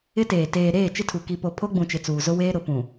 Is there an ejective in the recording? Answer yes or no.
no